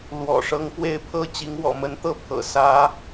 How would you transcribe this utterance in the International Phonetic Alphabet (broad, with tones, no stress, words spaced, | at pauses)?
lwɔ̰˨˩ʂɤ˧˥ŋ pwe˥˩ɪ̯pʰɤ˥ t͡ɕi˧˥ŋwɔ̰˨˩mə˧˥nt̪ɤ˥ pʰɤ̰˨˩sä˧˥